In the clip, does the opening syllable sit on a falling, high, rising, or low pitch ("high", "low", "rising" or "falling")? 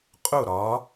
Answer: falling